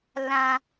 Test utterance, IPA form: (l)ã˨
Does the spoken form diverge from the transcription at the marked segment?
no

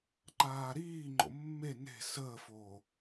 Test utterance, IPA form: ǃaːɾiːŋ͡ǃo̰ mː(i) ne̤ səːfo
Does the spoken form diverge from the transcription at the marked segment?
yes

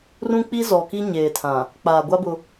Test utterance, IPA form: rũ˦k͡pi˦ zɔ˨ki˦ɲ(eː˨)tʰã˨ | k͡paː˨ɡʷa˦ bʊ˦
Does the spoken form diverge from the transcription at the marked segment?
no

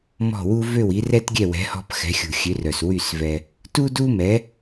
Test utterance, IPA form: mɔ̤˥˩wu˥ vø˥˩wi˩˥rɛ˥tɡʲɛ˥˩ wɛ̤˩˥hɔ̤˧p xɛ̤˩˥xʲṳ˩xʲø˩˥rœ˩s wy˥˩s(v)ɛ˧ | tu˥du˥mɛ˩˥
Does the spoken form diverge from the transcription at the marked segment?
no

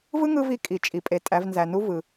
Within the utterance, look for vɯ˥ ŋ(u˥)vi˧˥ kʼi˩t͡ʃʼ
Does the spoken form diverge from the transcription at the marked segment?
yes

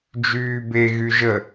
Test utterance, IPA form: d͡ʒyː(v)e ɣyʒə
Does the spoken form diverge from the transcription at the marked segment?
yes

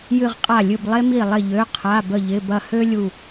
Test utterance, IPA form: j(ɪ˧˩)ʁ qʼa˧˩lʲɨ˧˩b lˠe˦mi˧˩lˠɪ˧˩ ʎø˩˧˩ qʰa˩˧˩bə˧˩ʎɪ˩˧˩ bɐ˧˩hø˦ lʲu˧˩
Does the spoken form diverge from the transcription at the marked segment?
yes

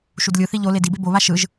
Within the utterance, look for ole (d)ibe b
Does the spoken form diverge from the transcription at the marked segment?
no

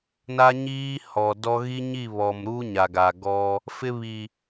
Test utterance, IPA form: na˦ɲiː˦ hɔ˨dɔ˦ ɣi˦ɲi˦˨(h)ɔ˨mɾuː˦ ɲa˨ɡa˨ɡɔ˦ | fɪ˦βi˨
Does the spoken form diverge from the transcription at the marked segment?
yes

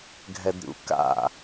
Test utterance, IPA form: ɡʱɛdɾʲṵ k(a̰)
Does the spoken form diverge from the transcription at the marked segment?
no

